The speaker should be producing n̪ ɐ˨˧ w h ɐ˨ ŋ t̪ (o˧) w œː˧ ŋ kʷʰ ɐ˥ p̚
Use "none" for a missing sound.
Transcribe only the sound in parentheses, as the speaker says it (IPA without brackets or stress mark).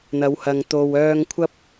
o˨